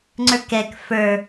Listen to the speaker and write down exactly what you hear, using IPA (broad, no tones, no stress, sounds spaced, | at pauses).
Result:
ŋ͡ǀ ə˞ k ɛ k f ə˞